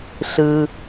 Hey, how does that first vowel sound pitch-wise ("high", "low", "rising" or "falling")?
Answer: low